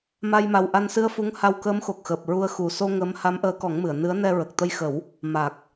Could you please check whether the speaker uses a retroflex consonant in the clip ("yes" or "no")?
no